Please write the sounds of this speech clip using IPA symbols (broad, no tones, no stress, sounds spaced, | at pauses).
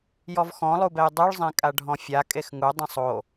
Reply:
j ɔ v x ɔ̃ lˠ u b ɛ j dˤ u ɭ zˤ ẽ kʼ a ɖʱ ɔ̃ fʲ a kʼ e x ŋ u dˤ ĩ sˤ o